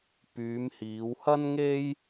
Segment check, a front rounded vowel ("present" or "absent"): present